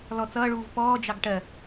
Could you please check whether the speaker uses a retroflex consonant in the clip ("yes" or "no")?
yes